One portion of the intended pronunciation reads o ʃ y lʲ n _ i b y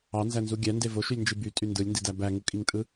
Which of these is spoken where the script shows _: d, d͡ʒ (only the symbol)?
d͡ʒ